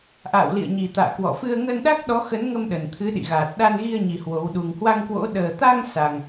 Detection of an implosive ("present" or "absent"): present